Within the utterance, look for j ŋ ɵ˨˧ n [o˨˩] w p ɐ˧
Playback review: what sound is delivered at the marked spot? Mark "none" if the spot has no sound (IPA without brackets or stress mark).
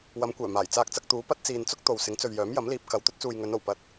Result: o˨˩